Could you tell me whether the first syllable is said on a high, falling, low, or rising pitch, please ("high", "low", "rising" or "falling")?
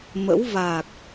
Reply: rising